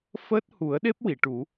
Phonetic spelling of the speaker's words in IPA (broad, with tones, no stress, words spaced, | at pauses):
fəː˦˥t̚hu˨˩˦ə̯ɗe˦˥p̚ wi˨˩˨ʈu˨˩˦